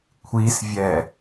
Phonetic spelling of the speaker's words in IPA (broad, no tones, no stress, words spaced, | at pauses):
kʷʰisvʲɛ